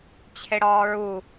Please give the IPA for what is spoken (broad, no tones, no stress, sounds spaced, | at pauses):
t͡ɕʰ e ɽ ɒː ɹ u